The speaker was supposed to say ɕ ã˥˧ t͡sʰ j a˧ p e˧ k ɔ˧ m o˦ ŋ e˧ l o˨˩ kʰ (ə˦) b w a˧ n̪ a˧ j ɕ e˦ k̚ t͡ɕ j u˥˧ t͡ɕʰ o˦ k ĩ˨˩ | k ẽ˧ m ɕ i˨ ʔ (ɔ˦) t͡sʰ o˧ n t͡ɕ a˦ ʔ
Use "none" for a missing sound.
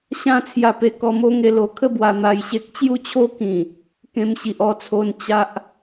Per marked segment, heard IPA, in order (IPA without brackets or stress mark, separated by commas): ə˥˧, ɔ˥˧